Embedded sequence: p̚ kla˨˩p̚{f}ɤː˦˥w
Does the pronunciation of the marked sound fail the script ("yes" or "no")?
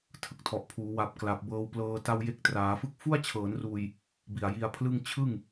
yes